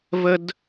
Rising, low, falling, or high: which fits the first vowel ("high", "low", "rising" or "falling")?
high